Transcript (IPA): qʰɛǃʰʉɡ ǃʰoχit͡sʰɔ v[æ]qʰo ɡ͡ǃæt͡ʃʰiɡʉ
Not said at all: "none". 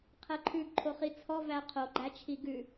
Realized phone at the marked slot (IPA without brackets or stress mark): æ